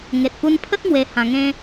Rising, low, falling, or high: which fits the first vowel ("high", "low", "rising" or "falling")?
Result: low